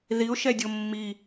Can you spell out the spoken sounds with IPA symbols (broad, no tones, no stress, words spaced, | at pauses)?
ðiʊ̯ ʃɛdʲomːi